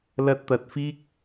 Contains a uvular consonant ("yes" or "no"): no